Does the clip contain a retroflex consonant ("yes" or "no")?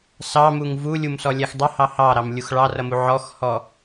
yes